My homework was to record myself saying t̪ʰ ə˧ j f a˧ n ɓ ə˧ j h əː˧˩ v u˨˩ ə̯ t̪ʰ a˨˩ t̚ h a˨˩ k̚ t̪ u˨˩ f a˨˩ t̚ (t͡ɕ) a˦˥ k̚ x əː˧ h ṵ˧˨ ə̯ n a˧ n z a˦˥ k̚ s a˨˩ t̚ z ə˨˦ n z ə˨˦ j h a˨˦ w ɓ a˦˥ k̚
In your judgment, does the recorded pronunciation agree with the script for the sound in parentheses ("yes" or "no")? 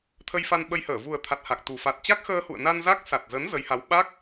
yes